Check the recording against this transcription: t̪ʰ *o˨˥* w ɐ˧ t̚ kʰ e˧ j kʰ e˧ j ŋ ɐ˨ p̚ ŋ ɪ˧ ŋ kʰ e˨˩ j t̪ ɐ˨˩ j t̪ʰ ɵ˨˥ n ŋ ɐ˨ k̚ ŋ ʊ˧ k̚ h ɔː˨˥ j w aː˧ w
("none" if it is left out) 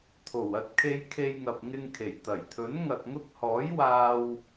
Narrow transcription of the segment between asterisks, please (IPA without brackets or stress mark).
o˨˩